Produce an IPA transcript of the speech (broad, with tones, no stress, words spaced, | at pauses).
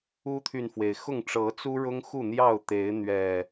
u˦t̪ʰy˨nfwe˩ɪ̯xʊ˥˨ŋ ʈ͡ʂɤ˨˦ t͡su˦ ɻʊ˦ŋxu˥˨n̪jɑ˥˨ʊ̯ t̪e˨˦ɪ̯n̪ɥɛ˨˩